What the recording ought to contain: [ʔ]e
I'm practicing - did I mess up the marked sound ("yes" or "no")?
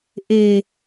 no